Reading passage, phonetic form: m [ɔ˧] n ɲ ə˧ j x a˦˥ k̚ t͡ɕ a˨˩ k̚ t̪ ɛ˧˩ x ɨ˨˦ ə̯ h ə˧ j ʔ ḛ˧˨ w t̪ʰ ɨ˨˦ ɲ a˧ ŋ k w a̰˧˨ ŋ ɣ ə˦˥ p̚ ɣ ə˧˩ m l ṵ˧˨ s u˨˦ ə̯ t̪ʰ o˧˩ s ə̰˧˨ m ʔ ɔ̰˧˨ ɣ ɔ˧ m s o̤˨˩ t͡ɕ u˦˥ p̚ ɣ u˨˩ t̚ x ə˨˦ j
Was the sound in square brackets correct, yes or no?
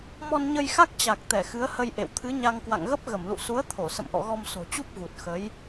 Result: yes